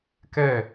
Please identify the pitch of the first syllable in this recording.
falling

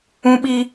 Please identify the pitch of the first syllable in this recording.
high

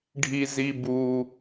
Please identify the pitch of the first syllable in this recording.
high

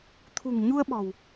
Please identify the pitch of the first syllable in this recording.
low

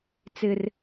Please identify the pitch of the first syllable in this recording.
high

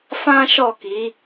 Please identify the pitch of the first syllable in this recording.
high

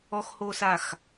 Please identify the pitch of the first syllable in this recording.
high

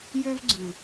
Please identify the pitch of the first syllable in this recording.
high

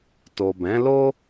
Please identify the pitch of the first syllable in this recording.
low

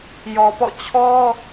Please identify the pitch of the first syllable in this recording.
low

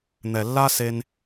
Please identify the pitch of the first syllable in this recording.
low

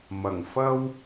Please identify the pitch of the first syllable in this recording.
low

